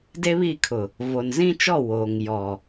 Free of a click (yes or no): yes